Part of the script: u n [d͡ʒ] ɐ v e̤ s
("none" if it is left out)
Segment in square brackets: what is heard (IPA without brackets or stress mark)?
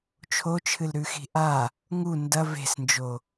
d